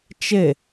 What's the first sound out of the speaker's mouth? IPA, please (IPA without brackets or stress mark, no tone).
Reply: t͡ʃ